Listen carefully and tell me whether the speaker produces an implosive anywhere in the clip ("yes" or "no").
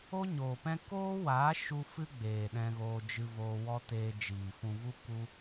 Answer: yes